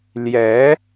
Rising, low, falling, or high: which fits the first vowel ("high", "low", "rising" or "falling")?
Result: rising